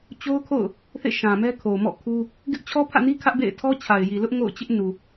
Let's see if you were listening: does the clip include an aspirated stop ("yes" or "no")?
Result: yes